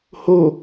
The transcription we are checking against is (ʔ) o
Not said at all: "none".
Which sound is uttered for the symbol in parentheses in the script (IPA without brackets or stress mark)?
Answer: h